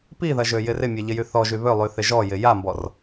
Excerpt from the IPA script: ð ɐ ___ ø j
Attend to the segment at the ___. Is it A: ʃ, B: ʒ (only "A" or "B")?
B